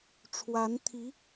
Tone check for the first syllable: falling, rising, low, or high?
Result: rising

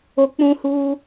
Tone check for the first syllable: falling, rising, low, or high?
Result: low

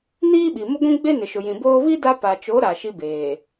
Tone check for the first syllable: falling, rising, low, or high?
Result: high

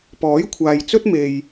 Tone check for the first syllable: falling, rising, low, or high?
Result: rising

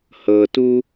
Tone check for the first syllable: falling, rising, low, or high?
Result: low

